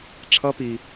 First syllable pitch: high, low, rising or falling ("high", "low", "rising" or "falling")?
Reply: rising